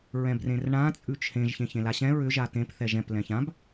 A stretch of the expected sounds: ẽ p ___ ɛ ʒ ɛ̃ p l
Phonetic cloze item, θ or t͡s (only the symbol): θ